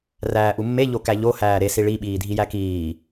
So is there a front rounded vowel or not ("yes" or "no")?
no